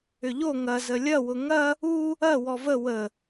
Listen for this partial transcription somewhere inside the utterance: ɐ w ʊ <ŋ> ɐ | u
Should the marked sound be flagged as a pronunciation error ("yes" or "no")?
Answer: no